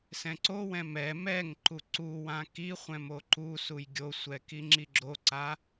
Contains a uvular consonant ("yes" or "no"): yes